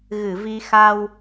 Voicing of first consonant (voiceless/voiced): voiced